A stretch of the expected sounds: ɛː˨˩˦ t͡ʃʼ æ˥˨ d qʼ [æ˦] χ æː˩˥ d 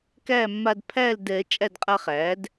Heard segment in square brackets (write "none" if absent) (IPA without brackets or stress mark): a˦